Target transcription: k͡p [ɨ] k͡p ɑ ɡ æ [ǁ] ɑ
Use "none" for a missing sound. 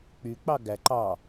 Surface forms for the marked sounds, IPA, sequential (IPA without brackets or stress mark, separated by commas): y, ǃ